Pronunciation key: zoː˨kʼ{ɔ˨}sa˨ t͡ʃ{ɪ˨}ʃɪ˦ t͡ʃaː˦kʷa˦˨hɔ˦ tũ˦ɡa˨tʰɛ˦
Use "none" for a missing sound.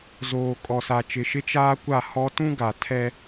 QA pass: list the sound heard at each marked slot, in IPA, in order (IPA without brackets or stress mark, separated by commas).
ɔ˨, ɪ˨